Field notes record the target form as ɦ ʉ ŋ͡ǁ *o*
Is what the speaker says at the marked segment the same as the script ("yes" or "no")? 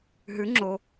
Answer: yes